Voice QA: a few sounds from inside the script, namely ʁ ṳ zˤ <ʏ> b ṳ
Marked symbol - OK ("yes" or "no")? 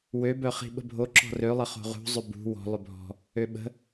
yes